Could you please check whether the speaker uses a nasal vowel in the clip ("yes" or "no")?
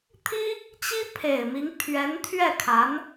no